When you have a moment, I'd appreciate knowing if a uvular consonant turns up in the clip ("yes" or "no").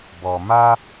no